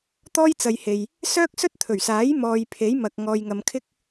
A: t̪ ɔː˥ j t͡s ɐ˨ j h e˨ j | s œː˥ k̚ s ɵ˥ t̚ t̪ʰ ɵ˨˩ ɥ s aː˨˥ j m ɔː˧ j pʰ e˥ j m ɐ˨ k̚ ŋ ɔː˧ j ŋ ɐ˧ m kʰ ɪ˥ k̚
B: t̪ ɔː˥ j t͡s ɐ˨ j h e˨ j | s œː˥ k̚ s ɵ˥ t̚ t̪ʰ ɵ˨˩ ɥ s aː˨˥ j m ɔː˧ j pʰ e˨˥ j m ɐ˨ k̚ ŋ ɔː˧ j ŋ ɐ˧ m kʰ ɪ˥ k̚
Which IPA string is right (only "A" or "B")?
B